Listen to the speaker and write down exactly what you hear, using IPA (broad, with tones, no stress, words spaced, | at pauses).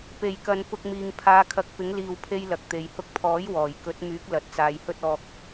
pe˨˩jkɐ˨n pʊ˧k̚miː˨ŋ pʰaː˨˧kʰɐ˨˥k̚pɪ˨˥ŋliː˨w pʰe˥jlɐ˨k̚ t̪e˨j hʊ˧k̚pʰɔː˨˥j wɔː˨˩j kɵ˨˥t̚myː˨˥k̚ lɐ˨t̚t͡saː˨jhɵ˥t̚ɔː˧k̚